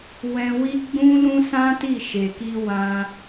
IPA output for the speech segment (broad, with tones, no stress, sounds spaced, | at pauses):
w ɛ̃˧ w i˦ ɡ͡b ũ˦ l ũ˦ s ã˦ t i˦˨ ʃ e˨ k i˧ w ã˧